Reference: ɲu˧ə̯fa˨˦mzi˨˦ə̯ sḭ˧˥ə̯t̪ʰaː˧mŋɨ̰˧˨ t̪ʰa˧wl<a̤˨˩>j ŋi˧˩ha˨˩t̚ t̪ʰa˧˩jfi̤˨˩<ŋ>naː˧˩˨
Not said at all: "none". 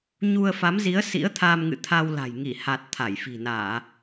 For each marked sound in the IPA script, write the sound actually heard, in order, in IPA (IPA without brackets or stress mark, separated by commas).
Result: a̤˨˩, none